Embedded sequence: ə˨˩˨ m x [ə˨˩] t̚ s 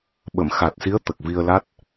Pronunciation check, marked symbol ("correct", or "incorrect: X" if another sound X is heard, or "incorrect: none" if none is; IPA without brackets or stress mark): incorrect: a˨˩